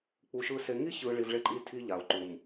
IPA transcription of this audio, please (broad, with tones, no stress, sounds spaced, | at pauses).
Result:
k͡p u˨ ʃ ɯ˨ s e˨ ŋ i˦ ç ɯ˨ ɭ i˨ v ɭ e˦ ǃʼ i˦ tʰ i˦ ʎ a˨ o̯ ǃ u˨ m